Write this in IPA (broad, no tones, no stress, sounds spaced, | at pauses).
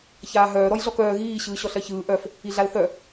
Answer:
ç aː ɦ œː ɾ ɔ j ɮ ɔ k œː ɣ iː ɕ ɯː ɕ ɔ ɬ ɜ ç ɯː ʔ œ f | i ɮ a l θ œ